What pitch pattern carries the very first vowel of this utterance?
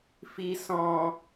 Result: low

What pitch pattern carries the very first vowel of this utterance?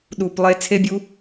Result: low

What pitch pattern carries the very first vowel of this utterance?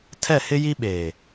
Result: falling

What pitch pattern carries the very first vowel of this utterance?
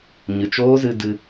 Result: low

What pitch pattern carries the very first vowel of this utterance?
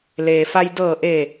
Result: low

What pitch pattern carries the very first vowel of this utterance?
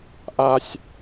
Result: high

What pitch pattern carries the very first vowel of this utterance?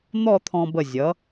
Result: falling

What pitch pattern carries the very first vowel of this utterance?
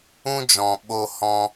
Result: high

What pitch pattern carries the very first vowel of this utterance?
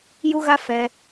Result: high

